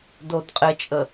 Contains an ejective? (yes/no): yes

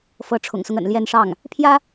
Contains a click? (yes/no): no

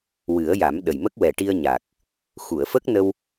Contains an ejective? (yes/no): no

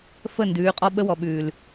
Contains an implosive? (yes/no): yes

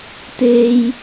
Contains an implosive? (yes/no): no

